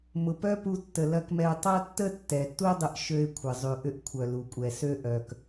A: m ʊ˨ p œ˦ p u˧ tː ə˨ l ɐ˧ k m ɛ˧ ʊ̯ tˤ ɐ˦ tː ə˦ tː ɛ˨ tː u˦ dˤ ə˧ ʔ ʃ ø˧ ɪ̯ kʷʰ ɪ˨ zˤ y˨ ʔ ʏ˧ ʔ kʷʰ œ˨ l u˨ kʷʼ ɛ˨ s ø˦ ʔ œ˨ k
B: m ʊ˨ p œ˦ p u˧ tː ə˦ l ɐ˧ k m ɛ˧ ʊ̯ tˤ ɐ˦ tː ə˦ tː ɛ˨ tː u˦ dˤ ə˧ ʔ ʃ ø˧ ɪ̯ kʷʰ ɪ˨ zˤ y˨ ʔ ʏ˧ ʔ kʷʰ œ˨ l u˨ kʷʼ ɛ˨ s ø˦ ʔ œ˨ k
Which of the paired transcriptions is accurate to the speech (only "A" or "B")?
A